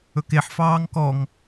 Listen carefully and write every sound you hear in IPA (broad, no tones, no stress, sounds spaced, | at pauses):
ɵ k e ħ f ɑː ŋ k ɔ ŋ